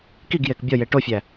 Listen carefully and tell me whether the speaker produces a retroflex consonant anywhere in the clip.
yes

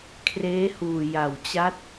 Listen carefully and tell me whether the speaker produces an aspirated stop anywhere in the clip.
yes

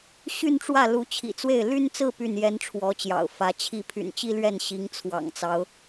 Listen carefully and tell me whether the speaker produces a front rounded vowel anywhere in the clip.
yes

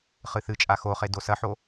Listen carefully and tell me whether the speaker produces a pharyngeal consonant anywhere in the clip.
yes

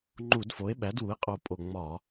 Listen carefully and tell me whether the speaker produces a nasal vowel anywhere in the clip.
no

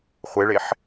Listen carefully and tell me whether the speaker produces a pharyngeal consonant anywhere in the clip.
yes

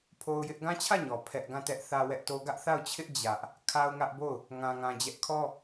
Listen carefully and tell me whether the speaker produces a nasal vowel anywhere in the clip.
yes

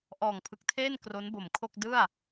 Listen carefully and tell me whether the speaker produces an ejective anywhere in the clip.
no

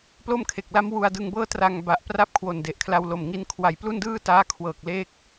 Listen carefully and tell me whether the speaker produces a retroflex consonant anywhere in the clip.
no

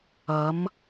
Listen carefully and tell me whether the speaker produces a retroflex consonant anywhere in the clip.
no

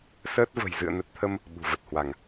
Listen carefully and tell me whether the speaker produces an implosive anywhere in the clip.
yes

